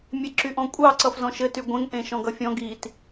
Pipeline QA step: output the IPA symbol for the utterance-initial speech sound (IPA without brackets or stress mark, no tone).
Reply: mʲ